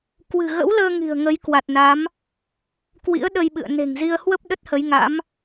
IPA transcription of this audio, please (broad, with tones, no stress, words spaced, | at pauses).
kwɨ̤˨˩ɣə̰˧˥wləː˧ ŋi̤˨˩ə̯ŋə˨˦j kwa˨˩t̚na˨˦m | kwḭ˧˥ə̯ɗə˧jɓɨ̰˧˨ə̯ ne̤˨˩ŋzi˧ə̯ hwə˦˥p̚ ɗə˦˥t̚hə˨˦jŋa̰˧˥m